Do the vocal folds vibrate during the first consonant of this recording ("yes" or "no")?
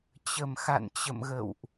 no